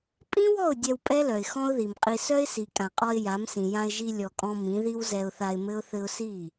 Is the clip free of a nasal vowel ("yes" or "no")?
no